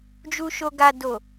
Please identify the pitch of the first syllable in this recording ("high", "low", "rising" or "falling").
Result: low